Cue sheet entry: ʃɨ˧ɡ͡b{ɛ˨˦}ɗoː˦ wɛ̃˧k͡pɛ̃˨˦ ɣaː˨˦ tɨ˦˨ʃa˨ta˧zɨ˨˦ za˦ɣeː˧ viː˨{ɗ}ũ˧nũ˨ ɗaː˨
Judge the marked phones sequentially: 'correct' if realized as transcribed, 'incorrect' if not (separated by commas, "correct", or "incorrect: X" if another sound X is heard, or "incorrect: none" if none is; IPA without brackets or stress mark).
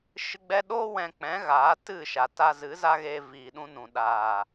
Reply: incorrect: ɛ˧, correct